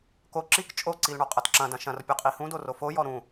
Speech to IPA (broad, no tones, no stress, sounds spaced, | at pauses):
k o ǁ i k t͡ʃʼ o ǀ i l ɳ ɔ qʼ ɐ t ǁ ɐ̃ d ɐ̃ ʃ ɐ̃ r pʲ o qʼ i h ũ d o r o f o j ɔ ɾ ũ